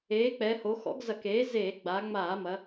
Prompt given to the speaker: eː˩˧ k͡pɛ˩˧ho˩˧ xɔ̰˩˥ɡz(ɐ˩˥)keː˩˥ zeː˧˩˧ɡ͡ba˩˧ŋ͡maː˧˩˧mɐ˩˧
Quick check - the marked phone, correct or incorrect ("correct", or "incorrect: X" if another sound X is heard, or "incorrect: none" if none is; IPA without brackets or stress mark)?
incorrect: ɐ˧˩˧